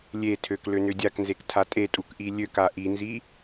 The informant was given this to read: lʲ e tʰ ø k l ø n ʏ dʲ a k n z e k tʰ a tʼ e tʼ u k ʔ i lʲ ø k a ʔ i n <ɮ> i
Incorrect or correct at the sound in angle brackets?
incorrect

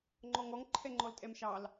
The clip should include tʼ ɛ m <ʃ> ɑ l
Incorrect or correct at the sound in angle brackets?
correct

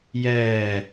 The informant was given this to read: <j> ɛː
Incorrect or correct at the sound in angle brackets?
correct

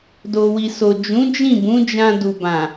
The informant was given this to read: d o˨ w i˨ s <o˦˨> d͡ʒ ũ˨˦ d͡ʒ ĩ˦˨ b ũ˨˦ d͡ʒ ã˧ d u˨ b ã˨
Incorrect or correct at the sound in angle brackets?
incorrect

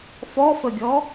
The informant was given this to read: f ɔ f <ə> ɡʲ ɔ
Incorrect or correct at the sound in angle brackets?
correct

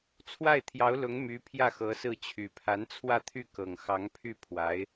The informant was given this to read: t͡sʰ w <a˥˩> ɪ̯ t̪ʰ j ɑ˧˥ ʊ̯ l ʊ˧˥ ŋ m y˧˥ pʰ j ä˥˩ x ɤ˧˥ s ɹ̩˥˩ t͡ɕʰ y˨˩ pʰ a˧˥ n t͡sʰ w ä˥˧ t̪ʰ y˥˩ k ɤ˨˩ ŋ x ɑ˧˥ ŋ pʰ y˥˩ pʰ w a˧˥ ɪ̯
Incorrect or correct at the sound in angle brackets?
correct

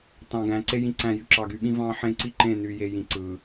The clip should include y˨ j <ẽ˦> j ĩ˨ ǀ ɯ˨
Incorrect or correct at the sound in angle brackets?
incorrect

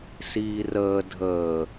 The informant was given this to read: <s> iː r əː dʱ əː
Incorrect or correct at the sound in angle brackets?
correct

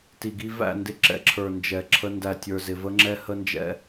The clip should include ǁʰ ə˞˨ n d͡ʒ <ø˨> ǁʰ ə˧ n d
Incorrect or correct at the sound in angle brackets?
incorrect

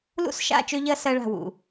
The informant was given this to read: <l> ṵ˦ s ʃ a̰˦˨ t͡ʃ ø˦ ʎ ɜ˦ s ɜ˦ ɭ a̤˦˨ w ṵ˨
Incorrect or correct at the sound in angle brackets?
correct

